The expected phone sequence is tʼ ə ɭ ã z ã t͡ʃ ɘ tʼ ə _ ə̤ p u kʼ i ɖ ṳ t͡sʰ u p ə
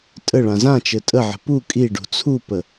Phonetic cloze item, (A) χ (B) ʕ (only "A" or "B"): B